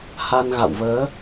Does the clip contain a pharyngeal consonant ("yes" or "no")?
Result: no